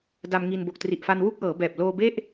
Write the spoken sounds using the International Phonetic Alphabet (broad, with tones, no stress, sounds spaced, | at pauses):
d a˧ m ŋ i˧ n b o˨˩ k̚ t r i˨˩ ʔ f a˧ n w u˥˩ k̚ ʔ ɤː˩˦ b ɛː˨˩ p̚ l oː˧ b e˥˩ ʔ